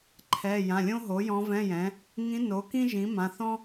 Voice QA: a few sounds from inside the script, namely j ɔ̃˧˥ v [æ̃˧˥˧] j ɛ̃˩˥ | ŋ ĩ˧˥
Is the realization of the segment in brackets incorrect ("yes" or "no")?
yes